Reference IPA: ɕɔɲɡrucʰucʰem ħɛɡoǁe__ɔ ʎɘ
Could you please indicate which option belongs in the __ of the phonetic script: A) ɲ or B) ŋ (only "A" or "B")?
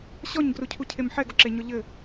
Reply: A